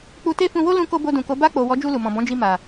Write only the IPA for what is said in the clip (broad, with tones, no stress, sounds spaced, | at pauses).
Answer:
k͡p u˧ t e˦ f ũ˧ w o˦ l ũ˧ k o˧ b o˧ d ũ˨ k o˨˦ b a˧ k͡p o˨ w ɔ˨˦ d͡ʒ u˧ l u˨ m ɔ̃˨ b ɔ̃˨˦ d͡ʒ i˧ m a˨